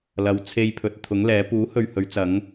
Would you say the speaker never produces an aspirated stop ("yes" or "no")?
no